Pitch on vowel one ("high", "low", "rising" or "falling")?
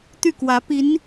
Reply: falling